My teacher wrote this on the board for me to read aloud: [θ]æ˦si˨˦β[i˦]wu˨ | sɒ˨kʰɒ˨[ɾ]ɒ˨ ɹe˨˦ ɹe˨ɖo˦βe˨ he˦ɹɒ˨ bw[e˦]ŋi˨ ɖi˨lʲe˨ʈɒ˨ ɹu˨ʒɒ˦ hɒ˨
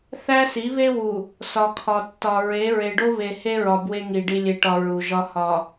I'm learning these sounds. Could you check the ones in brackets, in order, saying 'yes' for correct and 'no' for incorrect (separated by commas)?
yes, no, no, yes